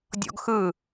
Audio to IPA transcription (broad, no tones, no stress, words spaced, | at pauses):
dʲɔ̰ɡxɯ